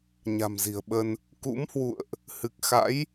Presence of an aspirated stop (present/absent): absent